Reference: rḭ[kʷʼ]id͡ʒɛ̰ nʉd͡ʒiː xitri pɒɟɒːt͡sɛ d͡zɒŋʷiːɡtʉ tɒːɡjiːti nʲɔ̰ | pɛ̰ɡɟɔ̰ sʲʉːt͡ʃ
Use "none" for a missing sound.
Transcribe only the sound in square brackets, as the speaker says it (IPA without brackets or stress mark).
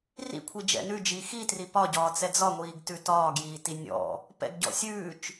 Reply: kʷʰ